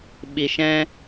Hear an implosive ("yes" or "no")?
yes